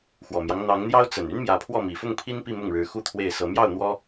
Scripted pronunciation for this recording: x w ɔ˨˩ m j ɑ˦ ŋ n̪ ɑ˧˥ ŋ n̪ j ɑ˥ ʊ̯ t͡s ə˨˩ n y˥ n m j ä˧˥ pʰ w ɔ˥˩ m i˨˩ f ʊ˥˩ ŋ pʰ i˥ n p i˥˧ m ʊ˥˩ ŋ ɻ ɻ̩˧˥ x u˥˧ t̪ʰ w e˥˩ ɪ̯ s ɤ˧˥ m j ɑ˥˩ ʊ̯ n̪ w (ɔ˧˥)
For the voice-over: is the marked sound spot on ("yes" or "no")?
no